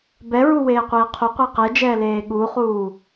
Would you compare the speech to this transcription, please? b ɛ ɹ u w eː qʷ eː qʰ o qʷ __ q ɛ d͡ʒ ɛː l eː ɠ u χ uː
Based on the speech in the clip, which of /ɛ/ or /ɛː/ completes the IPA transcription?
ɛ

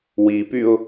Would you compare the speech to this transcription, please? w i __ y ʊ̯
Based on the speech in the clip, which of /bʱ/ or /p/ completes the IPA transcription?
p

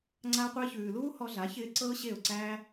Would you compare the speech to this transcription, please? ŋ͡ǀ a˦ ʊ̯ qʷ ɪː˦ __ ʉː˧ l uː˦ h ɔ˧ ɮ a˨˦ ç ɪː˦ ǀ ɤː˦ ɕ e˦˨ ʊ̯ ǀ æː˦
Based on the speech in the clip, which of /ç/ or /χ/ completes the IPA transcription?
ç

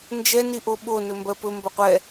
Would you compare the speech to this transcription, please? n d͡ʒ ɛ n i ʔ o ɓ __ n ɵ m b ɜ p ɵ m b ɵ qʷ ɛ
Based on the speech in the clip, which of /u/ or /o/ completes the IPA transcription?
o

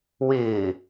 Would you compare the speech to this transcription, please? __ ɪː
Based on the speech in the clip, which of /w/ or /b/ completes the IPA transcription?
w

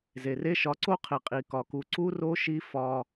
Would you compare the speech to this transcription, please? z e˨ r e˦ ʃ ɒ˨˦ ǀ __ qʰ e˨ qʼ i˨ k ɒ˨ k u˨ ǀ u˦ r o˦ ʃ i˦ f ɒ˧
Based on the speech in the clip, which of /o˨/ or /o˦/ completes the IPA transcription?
o˦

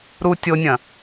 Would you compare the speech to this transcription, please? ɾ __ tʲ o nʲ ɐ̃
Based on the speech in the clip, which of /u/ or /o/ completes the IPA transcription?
u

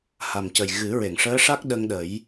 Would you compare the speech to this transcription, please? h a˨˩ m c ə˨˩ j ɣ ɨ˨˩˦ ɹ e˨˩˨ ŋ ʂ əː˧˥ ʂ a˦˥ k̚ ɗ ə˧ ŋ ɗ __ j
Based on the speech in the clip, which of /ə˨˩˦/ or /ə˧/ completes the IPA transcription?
ə˨˩˦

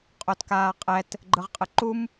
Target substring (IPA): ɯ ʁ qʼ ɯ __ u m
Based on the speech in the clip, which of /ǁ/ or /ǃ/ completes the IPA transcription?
ǃ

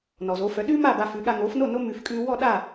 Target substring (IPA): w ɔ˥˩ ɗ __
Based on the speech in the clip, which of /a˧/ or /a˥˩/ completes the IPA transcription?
a˥˩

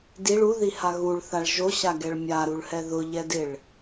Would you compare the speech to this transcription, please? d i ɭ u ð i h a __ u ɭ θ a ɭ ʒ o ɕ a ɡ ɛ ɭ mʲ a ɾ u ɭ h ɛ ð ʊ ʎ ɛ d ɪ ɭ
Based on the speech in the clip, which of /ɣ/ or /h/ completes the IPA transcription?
ɣ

